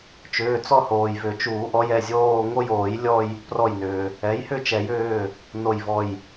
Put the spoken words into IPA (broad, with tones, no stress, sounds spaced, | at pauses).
t͡ʃ ʏː˩˧˩ t͡s ɔ˥˧ h oː˩ j v ʏ˨˩˦ t͡ʃ uː˨˩˦ ʔ ɔ˩˥ j ɛ˩˧˩ zʲ oː˥˧ ŋ o˥˧ j oː˨˩˦ j lʲ ɔ˥˧ j | p r ɔ˧˩ j n ʏː˩ | ɛ˩˥ j h ʏ˥˧ t͡ʃ ɛ˨˩˦ j ʏː˩˧˩ | n o˧˩ j v ɔ˧˩ j